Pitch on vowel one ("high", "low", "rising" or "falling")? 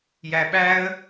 low